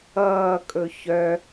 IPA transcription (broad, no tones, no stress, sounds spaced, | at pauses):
ʌː kʼ ɵ ç œ